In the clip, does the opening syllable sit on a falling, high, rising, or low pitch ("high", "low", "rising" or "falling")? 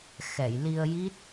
low